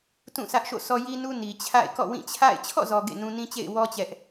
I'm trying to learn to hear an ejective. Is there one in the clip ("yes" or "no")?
no